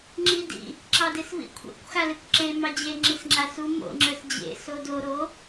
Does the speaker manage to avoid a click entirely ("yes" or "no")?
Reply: no